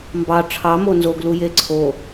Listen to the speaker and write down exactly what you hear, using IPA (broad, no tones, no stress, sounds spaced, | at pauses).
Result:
m b ɑ ʈ͡ʂʰ ɑ m o n z o ɡ l u j e ǀʰ o